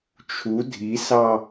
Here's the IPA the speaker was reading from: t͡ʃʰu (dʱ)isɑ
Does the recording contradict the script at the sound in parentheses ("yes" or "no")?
no